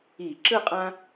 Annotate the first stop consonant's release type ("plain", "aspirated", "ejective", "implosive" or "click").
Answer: click